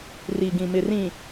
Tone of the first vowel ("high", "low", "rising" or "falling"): low